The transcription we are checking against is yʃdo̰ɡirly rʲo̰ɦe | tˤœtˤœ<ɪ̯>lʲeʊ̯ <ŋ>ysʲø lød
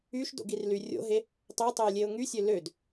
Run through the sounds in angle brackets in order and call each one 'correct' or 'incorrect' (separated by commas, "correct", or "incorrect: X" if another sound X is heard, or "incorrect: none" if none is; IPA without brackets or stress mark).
correct, correct